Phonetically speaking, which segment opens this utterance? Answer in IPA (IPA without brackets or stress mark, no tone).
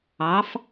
ɑ